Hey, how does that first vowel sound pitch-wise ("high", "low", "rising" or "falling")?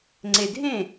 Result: low